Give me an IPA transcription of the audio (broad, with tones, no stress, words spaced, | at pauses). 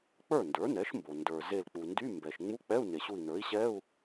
k͡pə˞˥˩ndə˞˩˥nɛ˩˥ʃmbo˩ ndə˞˩ ze˧˩lk͡pu˩ndy˧˥˧mbɛ˩ʃ ŋ͡mu˧˥˧k͡pɛ˧˥˧u̯ ne˩ɕu˧˩i̯nə˞˩˥i̯ɕɛ˧˥˧u̯